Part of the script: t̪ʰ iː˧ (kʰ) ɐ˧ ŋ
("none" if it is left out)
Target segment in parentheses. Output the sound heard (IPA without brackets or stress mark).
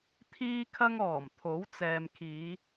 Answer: kʰ